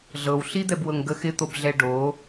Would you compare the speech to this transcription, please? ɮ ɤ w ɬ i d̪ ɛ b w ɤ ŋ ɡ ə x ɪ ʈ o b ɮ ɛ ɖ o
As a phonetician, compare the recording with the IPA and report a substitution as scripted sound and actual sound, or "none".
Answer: ʈ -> t̪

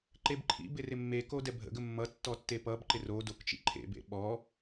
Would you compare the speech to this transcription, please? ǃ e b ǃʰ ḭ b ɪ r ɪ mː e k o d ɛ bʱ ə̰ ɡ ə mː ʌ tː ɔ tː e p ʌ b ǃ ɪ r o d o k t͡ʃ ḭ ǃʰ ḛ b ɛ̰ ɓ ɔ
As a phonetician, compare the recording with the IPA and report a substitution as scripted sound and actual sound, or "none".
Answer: ɛ̰ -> ḛ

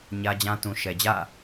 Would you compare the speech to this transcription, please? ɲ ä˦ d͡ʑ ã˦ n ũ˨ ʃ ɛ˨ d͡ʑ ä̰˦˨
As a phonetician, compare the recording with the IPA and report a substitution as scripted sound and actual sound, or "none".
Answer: n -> t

